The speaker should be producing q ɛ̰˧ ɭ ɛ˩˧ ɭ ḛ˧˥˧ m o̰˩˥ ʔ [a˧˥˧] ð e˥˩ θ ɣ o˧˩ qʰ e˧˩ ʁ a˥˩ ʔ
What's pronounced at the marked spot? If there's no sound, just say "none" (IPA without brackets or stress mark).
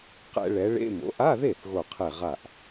a˧˥˧